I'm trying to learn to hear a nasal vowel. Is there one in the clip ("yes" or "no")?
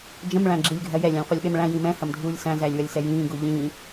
yes